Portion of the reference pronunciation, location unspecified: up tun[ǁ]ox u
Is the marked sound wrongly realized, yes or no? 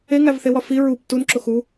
no